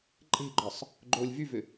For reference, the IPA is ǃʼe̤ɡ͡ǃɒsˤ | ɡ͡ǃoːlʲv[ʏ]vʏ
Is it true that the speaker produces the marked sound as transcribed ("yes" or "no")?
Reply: no